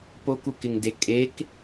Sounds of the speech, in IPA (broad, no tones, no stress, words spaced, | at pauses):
pokukɪŋde kʼek